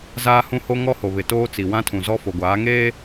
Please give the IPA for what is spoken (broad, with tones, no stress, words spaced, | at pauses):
zaː˦hũ˦ho˦ ŋɔ˦ho˨ βɪ˨toː˦t͡si˨ wã˦tʰũ˨zɔ˦ fo˨ɡʷaː˨˦ŋeː˦